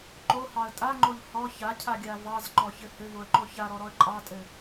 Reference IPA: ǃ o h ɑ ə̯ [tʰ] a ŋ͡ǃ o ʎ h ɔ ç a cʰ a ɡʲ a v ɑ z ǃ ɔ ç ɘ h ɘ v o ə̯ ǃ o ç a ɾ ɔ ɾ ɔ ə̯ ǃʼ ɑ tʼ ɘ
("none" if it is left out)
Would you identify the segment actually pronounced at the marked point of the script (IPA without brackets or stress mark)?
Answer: tʼ